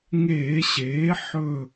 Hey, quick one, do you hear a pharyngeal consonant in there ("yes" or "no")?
yes